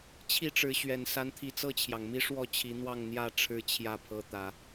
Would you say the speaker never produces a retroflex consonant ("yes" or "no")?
no